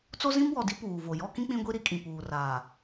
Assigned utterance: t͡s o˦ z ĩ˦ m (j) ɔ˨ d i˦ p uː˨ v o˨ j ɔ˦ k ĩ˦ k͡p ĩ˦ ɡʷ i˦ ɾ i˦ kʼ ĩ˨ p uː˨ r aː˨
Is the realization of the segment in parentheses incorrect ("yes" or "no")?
yes